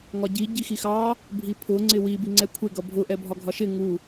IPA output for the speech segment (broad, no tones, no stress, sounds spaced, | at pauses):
ŋ ɒ ɟ i ɟ i x i x ɑ | bʱ i pʰ ʊ ŋ͡ǀ ɪ w i b i ŋ͡ǀ ɛ kʷʰ ɪ ɡ ʌ bʱ ʊ ʔ ɛ bʱ ɒ ɡʱ ɒ ʃ ɪ ŋ u